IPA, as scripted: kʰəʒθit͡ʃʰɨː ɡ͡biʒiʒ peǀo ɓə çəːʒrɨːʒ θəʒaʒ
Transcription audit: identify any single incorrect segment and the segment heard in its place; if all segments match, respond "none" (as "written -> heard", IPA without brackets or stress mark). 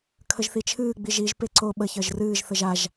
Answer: none